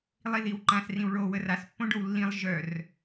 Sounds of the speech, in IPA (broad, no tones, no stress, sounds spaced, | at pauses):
lˠ i ð i w ǃ ã s r ĩ w ɭ o w ə r a s pː õ ɖ o w lː ĩ lˠ ʒ œ r